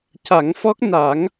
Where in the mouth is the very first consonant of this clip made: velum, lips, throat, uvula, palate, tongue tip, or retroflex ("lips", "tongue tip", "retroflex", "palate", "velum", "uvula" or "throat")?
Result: palate